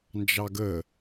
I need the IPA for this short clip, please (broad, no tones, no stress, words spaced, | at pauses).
nd͡ʒɑɡə